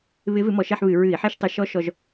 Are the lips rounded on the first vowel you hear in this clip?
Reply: no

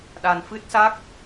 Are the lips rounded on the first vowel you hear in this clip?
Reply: no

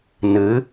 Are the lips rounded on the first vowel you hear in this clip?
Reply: no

